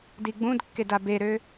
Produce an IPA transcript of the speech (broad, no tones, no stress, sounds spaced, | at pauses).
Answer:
d i ɡ͡b ũ d kː e d a b e ɾ ø